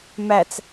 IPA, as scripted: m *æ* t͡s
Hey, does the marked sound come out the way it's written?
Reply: yes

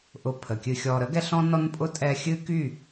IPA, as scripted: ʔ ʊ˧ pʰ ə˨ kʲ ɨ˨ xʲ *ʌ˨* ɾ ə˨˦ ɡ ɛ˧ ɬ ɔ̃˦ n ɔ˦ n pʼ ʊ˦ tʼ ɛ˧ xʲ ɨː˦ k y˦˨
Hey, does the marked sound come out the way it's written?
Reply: no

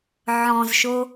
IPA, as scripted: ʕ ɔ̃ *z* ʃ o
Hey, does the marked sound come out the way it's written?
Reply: yes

